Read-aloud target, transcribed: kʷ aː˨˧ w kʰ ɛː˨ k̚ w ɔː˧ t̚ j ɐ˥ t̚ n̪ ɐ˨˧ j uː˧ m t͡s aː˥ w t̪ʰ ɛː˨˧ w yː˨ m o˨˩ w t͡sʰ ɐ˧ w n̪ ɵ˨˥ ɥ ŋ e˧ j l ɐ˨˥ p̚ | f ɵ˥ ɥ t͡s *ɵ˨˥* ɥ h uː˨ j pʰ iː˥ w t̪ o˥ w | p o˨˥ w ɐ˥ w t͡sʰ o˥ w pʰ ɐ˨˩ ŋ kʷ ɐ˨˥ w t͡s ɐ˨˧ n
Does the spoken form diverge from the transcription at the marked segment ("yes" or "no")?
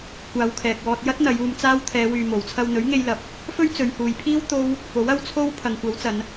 yes